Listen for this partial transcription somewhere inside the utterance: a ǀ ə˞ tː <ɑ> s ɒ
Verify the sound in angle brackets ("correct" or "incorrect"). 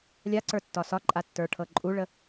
incorrect